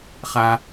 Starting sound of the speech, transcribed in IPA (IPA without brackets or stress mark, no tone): χ